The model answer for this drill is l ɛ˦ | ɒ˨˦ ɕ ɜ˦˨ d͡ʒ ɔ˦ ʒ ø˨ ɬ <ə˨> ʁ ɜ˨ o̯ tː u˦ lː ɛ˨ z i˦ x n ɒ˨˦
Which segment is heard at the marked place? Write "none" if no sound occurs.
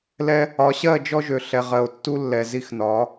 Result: ɛ˨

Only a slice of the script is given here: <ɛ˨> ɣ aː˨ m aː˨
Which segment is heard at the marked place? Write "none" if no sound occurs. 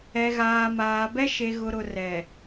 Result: ɛ˨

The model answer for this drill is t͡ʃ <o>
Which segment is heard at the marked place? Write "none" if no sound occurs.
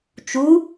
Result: u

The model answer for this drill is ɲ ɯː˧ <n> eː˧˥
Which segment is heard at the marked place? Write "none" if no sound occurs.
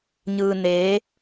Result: n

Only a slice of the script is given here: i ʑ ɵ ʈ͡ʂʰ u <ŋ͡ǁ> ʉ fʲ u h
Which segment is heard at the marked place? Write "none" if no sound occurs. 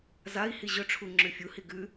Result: ŋ͡ǁ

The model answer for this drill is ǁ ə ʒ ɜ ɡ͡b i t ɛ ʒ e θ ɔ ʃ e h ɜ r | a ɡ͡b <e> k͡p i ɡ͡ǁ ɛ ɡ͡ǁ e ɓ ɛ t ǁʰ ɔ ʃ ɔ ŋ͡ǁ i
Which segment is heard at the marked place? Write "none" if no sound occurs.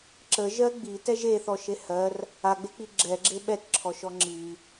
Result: e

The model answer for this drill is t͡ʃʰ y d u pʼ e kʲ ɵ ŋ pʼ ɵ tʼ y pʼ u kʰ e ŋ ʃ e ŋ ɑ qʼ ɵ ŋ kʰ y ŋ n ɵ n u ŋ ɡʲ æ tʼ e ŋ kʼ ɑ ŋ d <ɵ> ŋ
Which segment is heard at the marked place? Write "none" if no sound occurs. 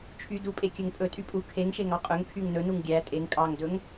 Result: ɵ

